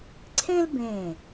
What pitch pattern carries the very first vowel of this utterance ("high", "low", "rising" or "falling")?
high